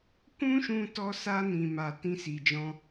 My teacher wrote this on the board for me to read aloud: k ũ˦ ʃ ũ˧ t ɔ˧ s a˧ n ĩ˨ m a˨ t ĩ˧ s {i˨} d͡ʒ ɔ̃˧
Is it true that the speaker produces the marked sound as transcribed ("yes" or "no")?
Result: yes